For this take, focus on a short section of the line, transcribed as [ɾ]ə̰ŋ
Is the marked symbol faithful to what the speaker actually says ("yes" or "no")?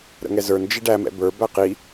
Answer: yes